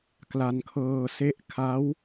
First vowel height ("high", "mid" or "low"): low